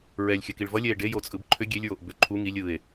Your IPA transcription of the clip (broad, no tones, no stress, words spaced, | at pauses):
ɹɛlʲxʲə kiɭvʌlʲɛe̯ ɖejot͡sʼɯb ǃʰʏ ɡʲelʲɹoʔ bʏ ǃʰu ŋilʲ ɯe̯